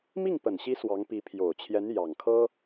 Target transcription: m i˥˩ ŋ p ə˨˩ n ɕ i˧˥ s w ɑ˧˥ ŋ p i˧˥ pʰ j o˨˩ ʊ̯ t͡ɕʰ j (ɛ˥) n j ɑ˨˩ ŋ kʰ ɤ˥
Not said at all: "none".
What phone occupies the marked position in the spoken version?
ɛ˧˥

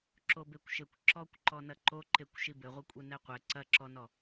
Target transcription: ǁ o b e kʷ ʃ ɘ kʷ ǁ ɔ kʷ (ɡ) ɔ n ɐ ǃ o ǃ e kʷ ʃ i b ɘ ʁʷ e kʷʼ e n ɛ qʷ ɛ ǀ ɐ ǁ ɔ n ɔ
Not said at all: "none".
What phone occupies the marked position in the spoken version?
ǃ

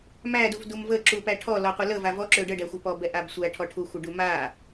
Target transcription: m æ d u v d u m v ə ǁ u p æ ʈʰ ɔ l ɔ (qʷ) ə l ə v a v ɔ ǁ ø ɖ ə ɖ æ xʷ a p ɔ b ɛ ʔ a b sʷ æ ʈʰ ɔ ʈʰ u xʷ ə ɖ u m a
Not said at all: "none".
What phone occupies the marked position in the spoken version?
qʷ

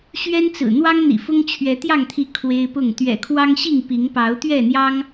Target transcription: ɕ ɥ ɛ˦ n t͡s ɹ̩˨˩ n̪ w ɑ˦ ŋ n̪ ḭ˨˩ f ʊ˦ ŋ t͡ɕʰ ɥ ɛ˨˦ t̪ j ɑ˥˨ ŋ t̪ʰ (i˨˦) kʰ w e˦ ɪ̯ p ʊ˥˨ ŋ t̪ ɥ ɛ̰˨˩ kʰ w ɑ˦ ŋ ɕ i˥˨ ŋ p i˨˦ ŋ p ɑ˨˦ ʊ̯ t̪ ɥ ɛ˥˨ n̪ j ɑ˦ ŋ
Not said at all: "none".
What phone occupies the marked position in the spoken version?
i˨˦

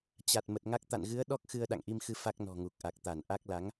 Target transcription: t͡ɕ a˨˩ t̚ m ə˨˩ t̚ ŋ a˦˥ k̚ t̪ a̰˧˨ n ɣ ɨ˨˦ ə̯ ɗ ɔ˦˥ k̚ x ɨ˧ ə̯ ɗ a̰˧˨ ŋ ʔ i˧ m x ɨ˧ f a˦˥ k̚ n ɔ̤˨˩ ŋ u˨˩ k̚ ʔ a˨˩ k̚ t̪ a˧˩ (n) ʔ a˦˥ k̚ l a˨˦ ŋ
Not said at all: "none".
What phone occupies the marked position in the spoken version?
n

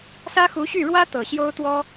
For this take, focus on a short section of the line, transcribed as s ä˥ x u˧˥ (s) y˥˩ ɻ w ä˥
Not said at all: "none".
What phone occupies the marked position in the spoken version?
ɕ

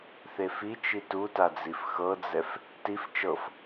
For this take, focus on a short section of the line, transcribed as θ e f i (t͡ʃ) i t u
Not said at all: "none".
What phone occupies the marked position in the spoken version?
t͡ʃ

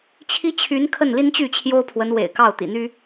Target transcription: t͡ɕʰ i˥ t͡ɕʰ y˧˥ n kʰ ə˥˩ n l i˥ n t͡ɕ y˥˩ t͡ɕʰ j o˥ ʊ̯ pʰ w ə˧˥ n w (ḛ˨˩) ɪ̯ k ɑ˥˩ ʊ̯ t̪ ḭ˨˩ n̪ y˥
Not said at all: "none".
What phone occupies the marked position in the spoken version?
ḛ˨˩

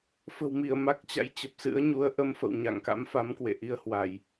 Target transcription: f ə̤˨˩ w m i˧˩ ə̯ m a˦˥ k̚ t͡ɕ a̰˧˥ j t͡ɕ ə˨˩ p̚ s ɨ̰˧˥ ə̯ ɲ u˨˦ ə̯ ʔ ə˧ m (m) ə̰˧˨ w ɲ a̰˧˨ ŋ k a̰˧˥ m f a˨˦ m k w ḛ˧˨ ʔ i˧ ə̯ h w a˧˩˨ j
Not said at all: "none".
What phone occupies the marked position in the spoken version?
f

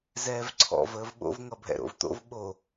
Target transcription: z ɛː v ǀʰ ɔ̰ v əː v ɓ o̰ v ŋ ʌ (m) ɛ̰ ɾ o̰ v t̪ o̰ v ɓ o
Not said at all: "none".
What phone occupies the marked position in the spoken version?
bʱ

